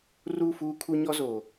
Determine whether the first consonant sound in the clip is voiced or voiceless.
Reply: voiced